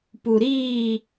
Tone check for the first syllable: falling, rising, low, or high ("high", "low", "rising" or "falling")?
low